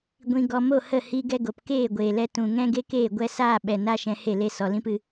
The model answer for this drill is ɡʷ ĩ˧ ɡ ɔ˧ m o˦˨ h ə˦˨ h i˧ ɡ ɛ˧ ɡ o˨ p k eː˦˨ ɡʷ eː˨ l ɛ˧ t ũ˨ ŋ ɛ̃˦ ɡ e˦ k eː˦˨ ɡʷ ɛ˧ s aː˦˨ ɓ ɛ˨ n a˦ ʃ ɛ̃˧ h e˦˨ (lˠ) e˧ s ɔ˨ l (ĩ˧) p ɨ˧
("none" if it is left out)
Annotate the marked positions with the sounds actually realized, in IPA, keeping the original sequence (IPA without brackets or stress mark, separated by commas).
l, ĩ˦